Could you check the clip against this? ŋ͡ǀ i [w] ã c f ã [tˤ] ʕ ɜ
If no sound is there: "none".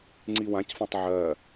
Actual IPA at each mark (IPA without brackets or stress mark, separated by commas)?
w, tˤ